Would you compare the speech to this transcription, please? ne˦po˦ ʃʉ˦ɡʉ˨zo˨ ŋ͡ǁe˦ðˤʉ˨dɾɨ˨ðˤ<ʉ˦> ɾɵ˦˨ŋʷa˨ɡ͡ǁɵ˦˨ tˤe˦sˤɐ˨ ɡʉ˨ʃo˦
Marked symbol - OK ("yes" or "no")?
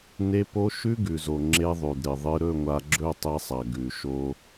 no